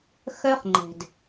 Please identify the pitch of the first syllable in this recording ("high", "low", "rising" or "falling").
high